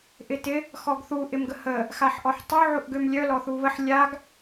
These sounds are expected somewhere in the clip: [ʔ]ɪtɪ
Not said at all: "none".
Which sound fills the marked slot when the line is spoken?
ʔ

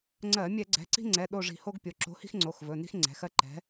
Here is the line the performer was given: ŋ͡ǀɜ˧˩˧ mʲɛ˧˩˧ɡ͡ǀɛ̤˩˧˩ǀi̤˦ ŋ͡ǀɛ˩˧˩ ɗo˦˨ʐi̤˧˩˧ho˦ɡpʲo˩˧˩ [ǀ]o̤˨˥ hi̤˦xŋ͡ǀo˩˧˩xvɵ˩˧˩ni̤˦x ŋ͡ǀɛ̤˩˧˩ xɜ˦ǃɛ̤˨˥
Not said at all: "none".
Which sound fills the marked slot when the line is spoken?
ǁ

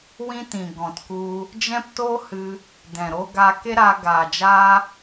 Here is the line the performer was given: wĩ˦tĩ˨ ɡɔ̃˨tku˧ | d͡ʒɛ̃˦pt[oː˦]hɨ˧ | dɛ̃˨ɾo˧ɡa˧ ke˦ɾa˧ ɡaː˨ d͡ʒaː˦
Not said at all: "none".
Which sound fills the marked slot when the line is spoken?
o˦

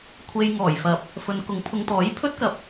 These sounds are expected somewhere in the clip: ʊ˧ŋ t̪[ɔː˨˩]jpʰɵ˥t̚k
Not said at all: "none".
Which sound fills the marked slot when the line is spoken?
ɔː˨˥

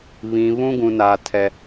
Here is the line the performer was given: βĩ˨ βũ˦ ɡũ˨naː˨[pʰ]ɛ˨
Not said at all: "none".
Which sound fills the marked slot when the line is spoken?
tʰ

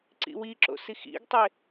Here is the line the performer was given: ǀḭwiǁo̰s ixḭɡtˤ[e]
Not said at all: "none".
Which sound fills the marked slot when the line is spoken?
e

